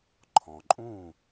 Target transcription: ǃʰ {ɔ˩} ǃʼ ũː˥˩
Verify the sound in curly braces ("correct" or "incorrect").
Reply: incorrect